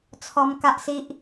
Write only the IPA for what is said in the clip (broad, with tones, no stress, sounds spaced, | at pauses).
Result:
t͡sʰ ɔ˧ m k a˦ ʔ s i˦ ʔ